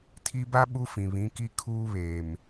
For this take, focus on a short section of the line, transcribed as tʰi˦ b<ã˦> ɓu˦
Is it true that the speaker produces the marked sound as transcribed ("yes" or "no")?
no